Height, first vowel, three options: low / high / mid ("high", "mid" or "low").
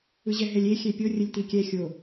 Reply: high